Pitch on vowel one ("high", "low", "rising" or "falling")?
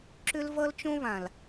high